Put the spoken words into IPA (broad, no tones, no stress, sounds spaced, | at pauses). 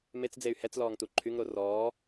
m e t͡s d͡z e y̯ h ɛ t͡s l ɔː ŋ t u ǃʰ y ŋ ɾ o r ɔː